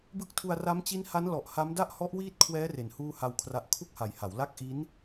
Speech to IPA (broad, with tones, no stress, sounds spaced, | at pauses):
b ɯ˦˥ k̚ tʰ u˧ a̯ r a˦˥ m t͡ɕ i˦˥ n h a˦˥ n l ɔ˨˩ ʔ h a˦˥ m d a˥˩ ʔ h ɔ˦˥ ʔ w iː˦˥ t̚ kʰ w ɛː˦˥ r e˩˦ n h uː˥˩ h a˧ w kʰ r a˦˥ ʔ kʰ u˥˩ k̚ h a˨˩ j h a˩˦ w l a˦˥ k̚ ʔ i˦˥ n